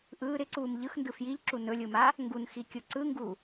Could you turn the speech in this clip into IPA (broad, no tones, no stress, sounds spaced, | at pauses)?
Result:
ʔ ɯː ɾ ɪ ǀ uː m ʎ ɯ x n d ɯ f j i ʎ ǁ u n ɵ lʲ ɯ m a | ŋ ɡ u n x i kʲ ɯ ǀ ɯ ŋ ɡ u